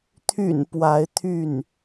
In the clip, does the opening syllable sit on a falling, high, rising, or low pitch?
low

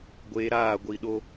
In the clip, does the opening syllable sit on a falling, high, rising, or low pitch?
low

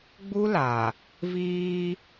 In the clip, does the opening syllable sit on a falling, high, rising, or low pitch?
high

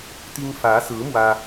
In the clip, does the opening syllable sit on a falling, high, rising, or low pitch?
high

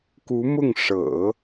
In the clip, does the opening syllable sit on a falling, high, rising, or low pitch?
rising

